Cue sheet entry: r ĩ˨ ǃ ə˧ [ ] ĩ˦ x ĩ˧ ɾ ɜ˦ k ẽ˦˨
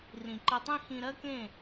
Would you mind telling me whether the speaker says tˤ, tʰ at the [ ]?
tˤ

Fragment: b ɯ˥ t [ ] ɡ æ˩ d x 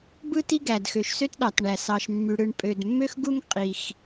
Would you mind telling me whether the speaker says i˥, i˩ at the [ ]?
i˥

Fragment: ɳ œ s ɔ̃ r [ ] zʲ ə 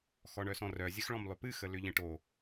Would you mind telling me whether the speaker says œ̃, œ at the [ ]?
œ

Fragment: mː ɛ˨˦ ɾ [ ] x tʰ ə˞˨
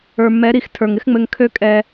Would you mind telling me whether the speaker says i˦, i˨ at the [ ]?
i˨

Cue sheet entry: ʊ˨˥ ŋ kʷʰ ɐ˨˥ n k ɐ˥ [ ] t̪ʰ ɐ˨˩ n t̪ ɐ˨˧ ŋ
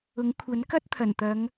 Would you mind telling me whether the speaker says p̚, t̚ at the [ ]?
t̚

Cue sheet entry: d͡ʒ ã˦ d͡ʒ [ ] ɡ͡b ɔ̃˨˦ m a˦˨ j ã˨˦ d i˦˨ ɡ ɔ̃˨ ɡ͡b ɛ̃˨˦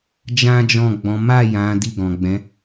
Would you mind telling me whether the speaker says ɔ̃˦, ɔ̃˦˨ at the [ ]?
ɔ̃˦˨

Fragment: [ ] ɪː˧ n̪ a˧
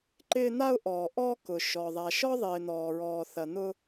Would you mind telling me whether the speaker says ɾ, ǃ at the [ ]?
ǃ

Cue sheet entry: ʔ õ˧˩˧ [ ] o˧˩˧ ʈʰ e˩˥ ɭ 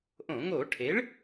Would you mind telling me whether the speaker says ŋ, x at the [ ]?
ŋ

